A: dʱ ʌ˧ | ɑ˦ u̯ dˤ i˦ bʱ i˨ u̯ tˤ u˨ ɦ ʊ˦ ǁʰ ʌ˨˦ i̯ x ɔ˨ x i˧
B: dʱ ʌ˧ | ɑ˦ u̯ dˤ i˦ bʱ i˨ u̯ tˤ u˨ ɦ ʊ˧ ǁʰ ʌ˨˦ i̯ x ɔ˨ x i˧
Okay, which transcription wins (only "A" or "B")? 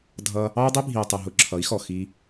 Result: B